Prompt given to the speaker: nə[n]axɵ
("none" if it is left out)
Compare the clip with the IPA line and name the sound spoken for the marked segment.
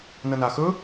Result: n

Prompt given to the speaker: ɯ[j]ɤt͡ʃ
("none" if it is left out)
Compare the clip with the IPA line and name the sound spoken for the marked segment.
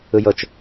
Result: j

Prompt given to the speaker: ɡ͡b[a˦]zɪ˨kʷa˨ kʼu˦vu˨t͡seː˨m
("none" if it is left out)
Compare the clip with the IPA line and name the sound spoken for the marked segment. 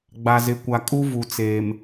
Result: a˨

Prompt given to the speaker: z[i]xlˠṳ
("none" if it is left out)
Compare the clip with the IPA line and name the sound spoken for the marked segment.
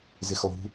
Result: ɪ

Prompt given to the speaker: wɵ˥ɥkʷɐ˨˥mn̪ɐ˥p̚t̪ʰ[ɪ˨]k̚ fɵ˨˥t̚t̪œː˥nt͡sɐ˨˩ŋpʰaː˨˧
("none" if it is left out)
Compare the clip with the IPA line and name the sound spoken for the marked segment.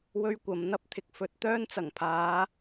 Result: ɪ˨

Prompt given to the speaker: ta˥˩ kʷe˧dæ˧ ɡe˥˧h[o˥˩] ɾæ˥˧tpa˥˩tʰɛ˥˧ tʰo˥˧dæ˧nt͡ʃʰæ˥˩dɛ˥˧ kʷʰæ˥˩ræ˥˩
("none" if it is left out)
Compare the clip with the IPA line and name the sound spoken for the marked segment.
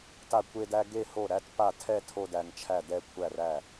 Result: o˥˩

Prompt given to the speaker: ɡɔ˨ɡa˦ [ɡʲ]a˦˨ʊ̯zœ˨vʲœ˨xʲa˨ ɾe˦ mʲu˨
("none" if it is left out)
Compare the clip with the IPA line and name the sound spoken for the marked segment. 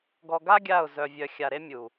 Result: ɡʲ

